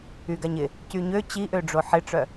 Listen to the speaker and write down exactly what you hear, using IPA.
y ɡ a ɲ ɪ | c y ɲ ø t͡ɕ i ʔ ø ɖ͡ʐ o ħ ɪ ʈ͡ʂ œ

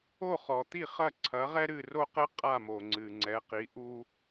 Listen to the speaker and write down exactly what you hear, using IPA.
o˥˩ χ ɔ˩ t̪ i˥˩ χ ɐ˥˩ ǀʰ ɐ˩˥ ʁ ɛ˥ ɾ ɨ˥˩ r o˥ q ɘ˥ qʼ a˥˩ m o˩ ŋ͡ǀ ɨ˩ ŋ͡ǀ ɛ˩˥ q i˩˥ ʔ u˥

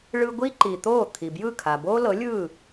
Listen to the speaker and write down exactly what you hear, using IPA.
ɭ ɯ˥ ɡʷ i˥ ǃ i˩ t̪ o˥˩ t̪ʰ i˩ b j ɯ˥˩ kʰ a˩ b o˥ l ɤ˩˥ lʲ ɯ˥˩

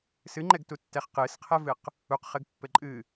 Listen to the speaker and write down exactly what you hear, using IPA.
s ɨ ŋ͡ǃ ɛ ɡ t u tː ɛ χ q ɨ s qʰ ɛ v ɨ q | u q χ ɘ ɡ pː ɘ ǃʼ ɨ

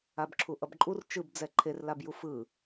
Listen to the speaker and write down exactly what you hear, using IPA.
a b ǁʰ u ʔ ʌ b ǃʼ u r t͡ʃ ɯ b d͡z ɛ ǃʰ e r l a b j u f ɯ

